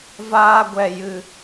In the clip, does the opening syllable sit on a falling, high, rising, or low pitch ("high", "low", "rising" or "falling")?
high